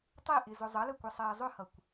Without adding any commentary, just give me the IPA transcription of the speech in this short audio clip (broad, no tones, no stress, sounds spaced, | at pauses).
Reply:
tˤ i ʔ ɪ z ʊ zˤ ʌ l ə kʷ ʌ sˤ ɛː zˤ ʊ h ʌ kʷ